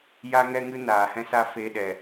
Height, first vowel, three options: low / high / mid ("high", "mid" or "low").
low